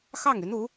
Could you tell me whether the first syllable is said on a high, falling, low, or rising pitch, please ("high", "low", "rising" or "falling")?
falling